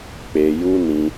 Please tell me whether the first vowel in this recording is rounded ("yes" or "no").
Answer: no